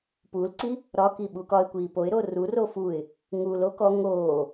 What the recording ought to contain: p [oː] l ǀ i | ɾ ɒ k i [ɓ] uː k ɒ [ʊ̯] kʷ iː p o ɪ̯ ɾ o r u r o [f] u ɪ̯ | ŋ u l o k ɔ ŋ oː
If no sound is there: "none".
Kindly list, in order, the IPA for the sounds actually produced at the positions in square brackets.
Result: uː, ɓ, ɪ̯, f

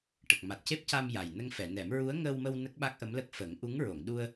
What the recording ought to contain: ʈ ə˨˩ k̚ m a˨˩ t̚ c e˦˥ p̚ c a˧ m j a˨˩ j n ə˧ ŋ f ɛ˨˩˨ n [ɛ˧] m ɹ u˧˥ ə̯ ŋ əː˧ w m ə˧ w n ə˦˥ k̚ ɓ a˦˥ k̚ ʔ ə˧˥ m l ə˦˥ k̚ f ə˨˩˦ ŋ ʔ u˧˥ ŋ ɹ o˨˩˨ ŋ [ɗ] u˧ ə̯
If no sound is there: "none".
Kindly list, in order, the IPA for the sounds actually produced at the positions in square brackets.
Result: ɛ˨˩˦, ɗ

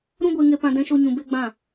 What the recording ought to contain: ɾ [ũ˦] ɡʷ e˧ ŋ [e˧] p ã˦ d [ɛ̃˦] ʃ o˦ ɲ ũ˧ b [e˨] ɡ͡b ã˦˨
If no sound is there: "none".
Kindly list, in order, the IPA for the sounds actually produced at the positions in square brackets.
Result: ũ˦, e˧, ɛ̃˦, e˧

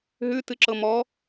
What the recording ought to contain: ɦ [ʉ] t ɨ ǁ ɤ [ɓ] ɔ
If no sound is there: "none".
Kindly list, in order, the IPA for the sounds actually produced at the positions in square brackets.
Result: ʉ, m

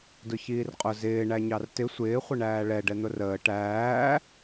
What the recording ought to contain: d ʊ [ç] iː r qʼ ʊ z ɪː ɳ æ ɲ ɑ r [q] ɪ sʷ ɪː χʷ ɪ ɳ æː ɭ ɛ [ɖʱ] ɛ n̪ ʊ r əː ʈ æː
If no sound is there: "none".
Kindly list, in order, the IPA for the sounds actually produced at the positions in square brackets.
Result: ç, t, ɖ

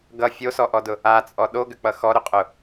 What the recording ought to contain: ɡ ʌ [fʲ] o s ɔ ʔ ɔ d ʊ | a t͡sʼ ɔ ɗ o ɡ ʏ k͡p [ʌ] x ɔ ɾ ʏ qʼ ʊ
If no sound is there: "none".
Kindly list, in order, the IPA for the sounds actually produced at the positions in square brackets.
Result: fʲ, ʌ

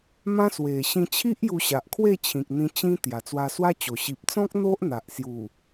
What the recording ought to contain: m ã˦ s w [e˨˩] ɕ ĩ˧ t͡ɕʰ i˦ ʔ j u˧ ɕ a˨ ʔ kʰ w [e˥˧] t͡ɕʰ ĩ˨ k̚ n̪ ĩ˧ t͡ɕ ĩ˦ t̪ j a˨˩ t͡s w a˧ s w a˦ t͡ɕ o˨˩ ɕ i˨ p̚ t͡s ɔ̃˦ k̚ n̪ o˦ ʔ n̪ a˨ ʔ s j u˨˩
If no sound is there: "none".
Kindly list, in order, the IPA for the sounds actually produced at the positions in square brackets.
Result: e˨˩, e˥˧

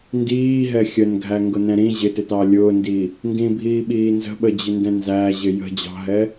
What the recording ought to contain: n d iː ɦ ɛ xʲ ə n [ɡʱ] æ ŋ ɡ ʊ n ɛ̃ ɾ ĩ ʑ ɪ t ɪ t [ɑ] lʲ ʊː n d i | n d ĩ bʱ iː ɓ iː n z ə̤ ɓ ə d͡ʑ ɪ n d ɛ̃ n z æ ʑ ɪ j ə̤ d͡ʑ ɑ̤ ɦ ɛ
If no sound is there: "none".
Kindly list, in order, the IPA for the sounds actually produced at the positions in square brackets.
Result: ɡʱ, ɑ

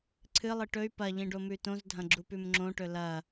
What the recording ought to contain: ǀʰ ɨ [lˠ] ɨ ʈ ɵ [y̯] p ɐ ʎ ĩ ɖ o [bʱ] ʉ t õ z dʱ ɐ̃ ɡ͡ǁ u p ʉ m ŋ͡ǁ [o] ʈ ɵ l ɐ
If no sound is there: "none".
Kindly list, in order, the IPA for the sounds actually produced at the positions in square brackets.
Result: lˠ, y̯, m, õ

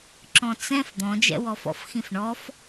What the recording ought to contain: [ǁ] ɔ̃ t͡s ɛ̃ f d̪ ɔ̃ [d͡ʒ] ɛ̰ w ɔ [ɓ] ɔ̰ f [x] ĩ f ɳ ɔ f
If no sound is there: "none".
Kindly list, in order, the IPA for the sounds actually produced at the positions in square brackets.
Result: ǁ, d͡ʒ, f, x

